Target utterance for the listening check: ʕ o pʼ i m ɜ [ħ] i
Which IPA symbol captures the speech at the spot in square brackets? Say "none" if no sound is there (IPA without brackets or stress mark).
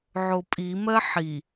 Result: ħ